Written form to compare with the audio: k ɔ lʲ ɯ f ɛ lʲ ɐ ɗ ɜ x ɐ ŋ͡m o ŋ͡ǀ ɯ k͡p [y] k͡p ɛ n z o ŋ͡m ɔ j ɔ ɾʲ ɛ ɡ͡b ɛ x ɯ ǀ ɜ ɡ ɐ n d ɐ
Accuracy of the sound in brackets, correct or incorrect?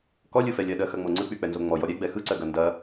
correct